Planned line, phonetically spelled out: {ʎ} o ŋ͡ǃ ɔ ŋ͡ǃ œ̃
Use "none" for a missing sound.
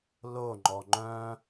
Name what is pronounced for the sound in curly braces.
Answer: l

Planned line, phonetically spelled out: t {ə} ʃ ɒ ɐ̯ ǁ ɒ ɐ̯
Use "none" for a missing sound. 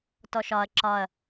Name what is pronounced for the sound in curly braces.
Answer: ɔ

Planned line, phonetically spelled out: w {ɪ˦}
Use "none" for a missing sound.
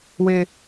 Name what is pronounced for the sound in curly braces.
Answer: ɪ˦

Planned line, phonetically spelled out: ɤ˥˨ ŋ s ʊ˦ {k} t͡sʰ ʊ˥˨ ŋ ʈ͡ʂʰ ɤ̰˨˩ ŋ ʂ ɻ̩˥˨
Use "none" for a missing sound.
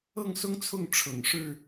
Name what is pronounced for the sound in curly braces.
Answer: ŋ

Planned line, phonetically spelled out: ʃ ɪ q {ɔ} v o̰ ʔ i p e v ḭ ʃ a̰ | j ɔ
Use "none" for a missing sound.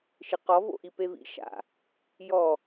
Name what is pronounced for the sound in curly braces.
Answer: ɔ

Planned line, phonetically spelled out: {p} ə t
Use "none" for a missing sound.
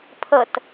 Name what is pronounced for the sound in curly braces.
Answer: pʰ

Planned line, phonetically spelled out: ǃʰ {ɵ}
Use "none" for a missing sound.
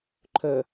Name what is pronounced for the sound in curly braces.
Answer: ɵ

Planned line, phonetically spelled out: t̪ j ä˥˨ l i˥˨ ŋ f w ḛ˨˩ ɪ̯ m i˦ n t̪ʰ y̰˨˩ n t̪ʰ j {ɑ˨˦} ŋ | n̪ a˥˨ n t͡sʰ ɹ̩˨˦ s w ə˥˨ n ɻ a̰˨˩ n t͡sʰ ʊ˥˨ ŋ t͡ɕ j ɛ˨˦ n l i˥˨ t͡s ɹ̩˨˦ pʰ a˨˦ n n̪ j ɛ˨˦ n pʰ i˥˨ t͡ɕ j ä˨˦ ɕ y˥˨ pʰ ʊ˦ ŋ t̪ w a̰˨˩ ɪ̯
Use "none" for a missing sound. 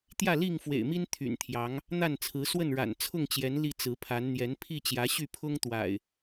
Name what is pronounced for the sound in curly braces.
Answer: ɑ˨˦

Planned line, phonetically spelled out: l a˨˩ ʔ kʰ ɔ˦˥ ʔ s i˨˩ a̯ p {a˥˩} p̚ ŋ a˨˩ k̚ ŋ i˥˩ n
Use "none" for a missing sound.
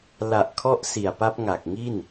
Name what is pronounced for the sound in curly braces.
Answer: a˦˥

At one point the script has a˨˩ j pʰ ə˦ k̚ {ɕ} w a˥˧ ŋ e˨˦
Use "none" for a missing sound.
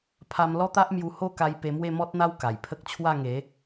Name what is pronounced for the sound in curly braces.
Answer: t͡ɕʰ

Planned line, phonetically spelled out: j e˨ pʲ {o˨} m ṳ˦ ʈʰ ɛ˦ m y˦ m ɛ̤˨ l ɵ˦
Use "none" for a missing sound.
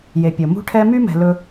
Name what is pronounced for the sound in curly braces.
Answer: ɵ˨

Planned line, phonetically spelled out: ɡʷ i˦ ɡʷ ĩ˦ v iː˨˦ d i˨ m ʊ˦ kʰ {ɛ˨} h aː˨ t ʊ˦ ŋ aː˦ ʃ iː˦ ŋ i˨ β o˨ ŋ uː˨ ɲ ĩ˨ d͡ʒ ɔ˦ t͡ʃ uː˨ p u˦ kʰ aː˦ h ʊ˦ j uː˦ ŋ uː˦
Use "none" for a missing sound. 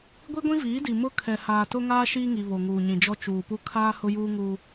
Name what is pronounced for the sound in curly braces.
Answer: ɛ˨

